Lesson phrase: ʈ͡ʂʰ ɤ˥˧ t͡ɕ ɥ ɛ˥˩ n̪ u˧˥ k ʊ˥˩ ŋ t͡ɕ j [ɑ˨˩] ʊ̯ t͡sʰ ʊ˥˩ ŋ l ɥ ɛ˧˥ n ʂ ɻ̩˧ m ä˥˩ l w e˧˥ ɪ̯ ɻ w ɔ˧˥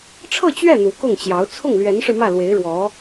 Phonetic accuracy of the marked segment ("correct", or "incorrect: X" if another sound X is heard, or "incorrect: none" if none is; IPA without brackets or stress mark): incorrect: ɑ˧˥